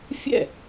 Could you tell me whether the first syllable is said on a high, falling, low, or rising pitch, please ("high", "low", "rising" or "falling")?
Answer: falling